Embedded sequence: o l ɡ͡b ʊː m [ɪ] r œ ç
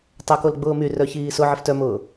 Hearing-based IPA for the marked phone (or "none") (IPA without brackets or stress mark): y